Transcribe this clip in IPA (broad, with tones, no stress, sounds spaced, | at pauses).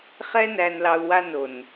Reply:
χ ɛ˦ n æ˧ n l ɑ˧ u̯ w a˧ n o˨ n